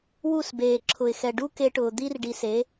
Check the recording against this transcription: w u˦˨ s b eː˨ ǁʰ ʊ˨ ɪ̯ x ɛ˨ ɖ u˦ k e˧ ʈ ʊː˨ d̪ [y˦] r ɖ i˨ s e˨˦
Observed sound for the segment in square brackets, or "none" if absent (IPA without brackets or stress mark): i˦